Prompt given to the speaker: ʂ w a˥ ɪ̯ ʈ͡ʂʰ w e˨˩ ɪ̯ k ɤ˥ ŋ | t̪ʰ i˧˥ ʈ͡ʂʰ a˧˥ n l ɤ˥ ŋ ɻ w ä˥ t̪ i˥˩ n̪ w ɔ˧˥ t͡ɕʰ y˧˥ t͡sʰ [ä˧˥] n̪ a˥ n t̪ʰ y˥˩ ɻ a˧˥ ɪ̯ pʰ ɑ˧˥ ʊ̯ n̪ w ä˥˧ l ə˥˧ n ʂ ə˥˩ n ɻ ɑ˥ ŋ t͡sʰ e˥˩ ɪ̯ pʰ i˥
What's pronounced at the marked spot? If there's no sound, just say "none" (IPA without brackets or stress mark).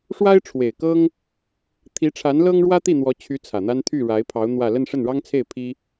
ä˨˩